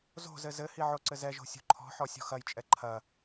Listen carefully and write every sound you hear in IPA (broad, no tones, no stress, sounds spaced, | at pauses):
z o̤ z ɘ z ɘ h i ʕ o ǀ ɘ z ɛ ʒ o̤ sʲ o̤ ǃʰ ɔ̤ ħ ɔ sʲ ɔ̤ x ɐ j t͡ʃʼ ɛ ǃʰ ɐ